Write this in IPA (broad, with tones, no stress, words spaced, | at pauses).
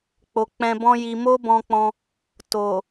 k͡po˨k͡pɛ̃˧bɔ̃˦ji˧ mo˦bɔ̃˧k͡pɔ̃˧ | to˨